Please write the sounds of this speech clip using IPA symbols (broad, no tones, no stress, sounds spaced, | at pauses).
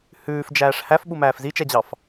h ʉː f d͡ʒ æː ʂ h æ f ɓ u m æː f z i t͡ʃ ɛ d͡ʑ ɑ f